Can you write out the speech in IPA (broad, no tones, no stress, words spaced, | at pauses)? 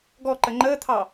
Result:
ɡɔǃə ŋ͡ǃəːt̪ʰɑ